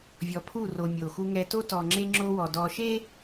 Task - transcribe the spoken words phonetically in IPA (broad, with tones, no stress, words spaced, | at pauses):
vʲɔ˨pʰu˦˨ro˨ mʲo˨xu˦ŋɛ˦ to˦tɔ˨ŋ͡ǁe˦ ŋ͡ǁo˦wɔ˨ dɔ˨ʃe˦